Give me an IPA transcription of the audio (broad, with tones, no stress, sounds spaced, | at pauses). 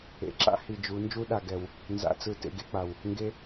ḛ˨ ǁ a̰˦ h i˨ d͡ʒ u˨˦ n d͡ʒ u˦ ɗ a˨ ɡ ɛ˨ w | n z a̰˦˨ t͡s ɯ˦ t ḛ˦ ɡ e˦ k͡p a˨ w | ŋ ɡ e˦